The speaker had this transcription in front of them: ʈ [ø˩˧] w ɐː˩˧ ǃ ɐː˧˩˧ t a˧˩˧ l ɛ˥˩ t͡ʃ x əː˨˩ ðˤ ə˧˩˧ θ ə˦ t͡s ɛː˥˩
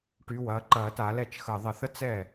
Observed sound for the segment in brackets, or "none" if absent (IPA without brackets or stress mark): y˩˧